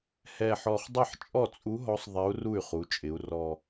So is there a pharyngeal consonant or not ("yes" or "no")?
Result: yes